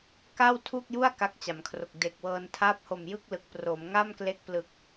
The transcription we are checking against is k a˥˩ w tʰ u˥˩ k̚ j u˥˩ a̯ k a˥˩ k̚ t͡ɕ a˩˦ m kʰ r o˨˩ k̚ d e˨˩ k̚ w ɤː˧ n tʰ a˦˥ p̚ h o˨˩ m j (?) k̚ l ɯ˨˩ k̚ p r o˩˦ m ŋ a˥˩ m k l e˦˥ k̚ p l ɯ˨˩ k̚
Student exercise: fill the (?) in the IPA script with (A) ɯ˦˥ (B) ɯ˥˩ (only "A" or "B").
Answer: B